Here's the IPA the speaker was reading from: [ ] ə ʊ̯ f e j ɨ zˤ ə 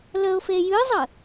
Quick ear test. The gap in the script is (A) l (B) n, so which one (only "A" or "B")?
A